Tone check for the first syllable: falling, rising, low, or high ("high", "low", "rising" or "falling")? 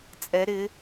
rising